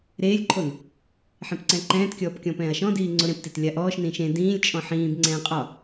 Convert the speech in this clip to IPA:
ɾeːlʲǃʰon | ħẽpǀɛ̃ǃɛ̃ːtkʲɔːp kʲɔ̃pɛ̃ːɐ̯ʃɔ̃diː ŋ͡ǀoɾẽptet lʲaʔɔːʃnĩːʃ ẽ dĩːlʲt͡ʃʼɔ̃ ħĩːbŋ͡ǀɛ̃ː qʼɒ

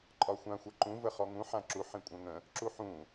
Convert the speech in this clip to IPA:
ǃʼɒxʷã xʷɜǃũ vəχɔŋũ ħãǁu ħĩkʷʼœ̃ŋə̃ | ǁuħũ

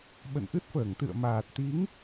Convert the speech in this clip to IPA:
ɓə̰˧˨nʔɨ˦˥t̚fəː˧˩ŋ t̪ɨ̰˧˨ə̯maː˨˩t̚t̪i˨˦ŋ

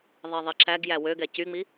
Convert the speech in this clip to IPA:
ðˤeðˤiǁæɡjæ wøɡɛ cyŋ͡mi

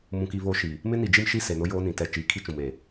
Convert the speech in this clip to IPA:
mũ˨ki˨ βo˨˦ʃi˨ | mɪ˦ni˨d͡ʒi˦mʃi˦ se˨ nʊ˦joː˦nĩ˨ tɛ˨ t͡ʃiː˨kʰi˦t͡ʃũ˨m e˨

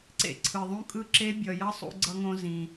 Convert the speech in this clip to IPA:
ǀḛ˩ǀʰɯ˩ðˤũ˧ kʼɯ˧ǁe˧˥ bʲʌ˩jʌ˧˥ sˤṵ˧ɡ͡ǀʌ˧ŋõ˧ zĩ˩

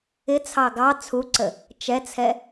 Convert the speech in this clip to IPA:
ɪt͡sʰɑ ɡɑ t͡sʰuǀə | t͡ʃɛt͡sʰɛ

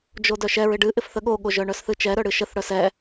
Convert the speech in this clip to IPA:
d͡ʒodœʃɛɹ ɪɖɨ ʔɪfθəɠoɠoʒ œɳœsθɨt͡ʃɛ ɾœɽɨʃəθ ɽœsɛ

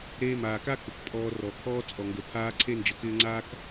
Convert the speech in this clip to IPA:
ɾeː˧maː˨ka˦ kə˨k pʼɔː˧rɔ˨ kʰɔː˦ t͡sʼɔ˨ŋɡə˨ pʰaː˦ǀʰe˦nd͡ʒə˨˦kɪː˦ ŋ͡ǀaː˦k

